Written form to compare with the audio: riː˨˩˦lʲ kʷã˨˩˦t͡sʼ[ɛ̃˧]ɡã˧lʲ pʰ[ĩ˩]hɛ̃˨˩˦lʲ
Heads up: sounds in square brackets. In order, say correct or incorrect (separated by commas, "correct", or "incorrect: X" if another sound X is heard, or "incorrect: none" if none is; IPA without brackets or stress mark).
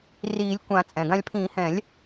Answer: incorrect: ɛ̃˩, incorrect: ĩ˨˩˦